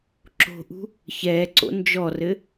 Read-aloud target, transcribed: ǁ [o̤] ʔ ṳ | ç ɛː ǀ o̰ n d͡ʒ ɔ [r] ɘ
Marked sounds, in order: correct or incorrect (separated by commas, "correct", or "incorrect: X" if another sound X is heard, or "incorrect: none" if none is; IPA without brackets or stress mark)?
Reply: correct, correct